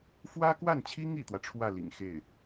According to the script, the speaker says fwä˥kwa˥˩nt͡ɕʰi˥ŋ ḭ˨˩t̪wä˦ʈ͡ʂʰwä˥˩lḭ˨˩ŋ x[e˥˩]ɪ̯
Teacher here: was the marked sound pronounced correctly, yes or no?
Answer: yes